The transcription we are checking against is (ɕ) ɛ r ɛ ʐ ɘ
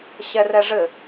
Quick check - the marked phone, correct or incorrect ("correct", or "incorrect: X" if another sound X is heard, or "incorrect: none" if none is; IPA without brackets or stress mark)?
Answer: correct